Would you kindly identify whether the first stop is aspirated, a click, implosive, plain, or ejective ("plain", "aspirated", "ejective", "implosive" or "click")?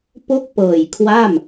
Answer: plain